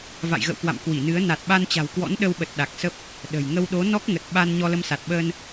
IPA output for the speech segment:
v a̰˧˨ j ɣ ə̰˧˨ w k w a̰˧˨ m k w i˧˩ n ɨ˨˦ ə̯ n a˨˩ t̚ ɓ a˧ n t͡ɕ a̤˨˩ w k w ɔ̰˧˥ n ɗ ə˧ w ɓ ə˨˩ t̚ ɗ a˨˩ k̚ s ə˦˥ p̚ | ɗ ə̤˨˩ j ŋ ə˧ w ɗ o˨˦ n ɔ˦˥ k̚ ŋ ə˨˩ t̚ ɓ a˧ n ɲ ɔ˧ l ə˧ m s a˨˩ t̚ ɓ əː˧ n

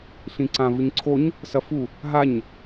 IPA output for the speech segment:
ɬ ĩ ǀ ã v ɨ ɲ ǀʰ o ɲ | s ɐ f u | ɦ a ɲ

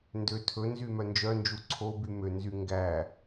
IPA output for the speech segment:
n d ø tʰ ɵ n z y m œ n d͡ʒ œ n d͡ʒ u ǀʰ o b y m ø n z y ŋ ɡ æ

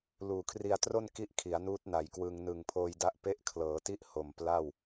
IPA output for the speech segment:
l uː˨˩ kʰ r i˧ a̯ t r o˥˩ n k i˥˩ ʔ kʰ i˩˦ a̯ n uː˦˥ t̚ n a˨˩ j k w ɯ˧ ŋ n ɯ˨˩ ŋ pʰ oː˧ j d a˦˥ ʔ p e˦˥ ʔ kʰ l ɤː˩˦ t i˦˥ ʔ h o˨˩ m p l a˥˩ w

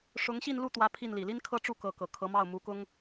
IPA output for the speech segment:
ʂ ʊ˧˥ ŋ ɕ i˥˧ n l u˥˩ t̪ w ä˧˥ pʰ i˥˩ n l i˨˩ l i˥ n kʰ ɤ˥ ʈ͡ʂ u˥˩ k ɤ˧˥ k ɤ˨˩ kʰ ɤ˧˥ m ɑ˥˩ ʊ̯ m u˧˥ k ʊ˥ ŋ

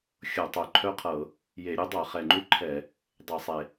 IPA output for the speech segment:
xʲ ɤ˧˩˧ tˤ œ˨˩ ǃʰ œ˥ qʰ ɤ˧˩˧ | j e˧˩˧ ɾʲ u˥ dˤ ɤ˧˩˧ χ ɛ˨˩ ŋ͡ǃ u˥ ǃʰ ɛ˧˩˧ | dˤ e˧˩˧ sˤ e˨˩

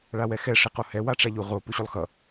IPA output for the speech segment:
ɭ a w ɛ x ɛ ʂ i q o h ɛ w a ʈ͡ʂ a ʎ u ʁ o p u ɕ u lˠ x ʌ

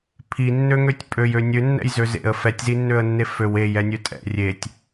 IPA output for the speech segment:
pʰ i nː ø ŋ ø tʲ pʼ ø j ø nʲ ø nː ɛ̰ j z ø z ḛ ə̯ f ɛ tʲ z i nː ø ə̯ nː e f ø w e j ɛ nʲ ø tʼ ɛ̰ rʲ e tʲ

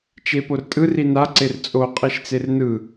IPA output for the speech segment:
t͡ʃ e p o r tʼ ɯ r i n a ǀ e r t͡sʼ o qʼ i ʃ t͡s e r n ɯ

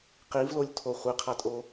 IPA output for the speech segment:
q i v l o lʲ tʰ o χʷ i qʰ a tʼ o

